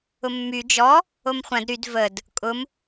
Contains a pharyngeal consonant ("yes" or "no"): no